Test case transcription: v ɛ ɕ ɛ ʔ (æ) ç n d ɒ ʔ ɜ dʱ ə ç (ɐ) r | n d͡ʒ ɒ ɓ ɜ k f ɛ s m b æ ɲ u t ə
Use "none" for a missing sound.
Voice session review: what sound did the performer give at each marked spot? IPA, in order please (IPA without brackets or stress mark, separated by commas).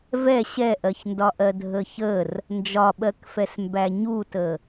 ɜ, ə